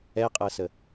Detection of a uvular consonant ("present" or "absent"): present